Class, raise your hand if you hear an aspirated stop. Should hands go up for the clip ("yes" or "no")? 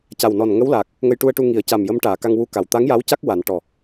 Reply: no